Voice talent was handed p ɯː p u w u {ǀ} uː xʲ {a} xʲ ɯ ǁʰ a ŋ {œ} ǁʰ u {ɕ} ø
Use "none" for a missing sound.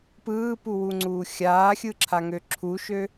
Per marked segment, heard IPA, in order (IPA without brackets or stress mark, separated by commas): ŋ͡ǀ, aː, ø, ʃ